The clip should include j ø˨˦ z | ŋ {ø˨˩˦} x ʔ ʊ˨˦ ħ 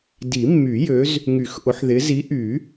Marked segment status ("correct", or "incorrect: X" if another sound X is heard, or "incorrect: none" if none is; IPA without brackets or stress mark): incorrect: y˨˩˦